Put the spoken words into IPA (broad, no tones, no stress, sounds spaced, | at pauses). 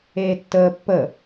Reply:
eː tː əː pː ə